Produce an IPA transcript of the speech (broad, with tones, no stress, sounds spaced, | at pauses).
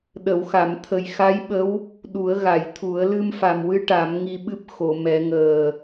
ɗ ə˨˩˨ w x a˨˩˨ m t̪ʰ ə˨˩ j x a˧˥ j ɓ ə˧˥ w | ɗ u˨˩˦ ə̯ ɣ a˨˩˨ j t̪ʰ u˨˩˦ ə̯ l ɨ˧ m f a˨˩ m w ɨ˧ ʈ a˨˩˦ m ŋ i˧ ɓ ɨ˦˥ p̚ x o˨˩˨ m ɛ˨˩˦ ŋ əː˨˩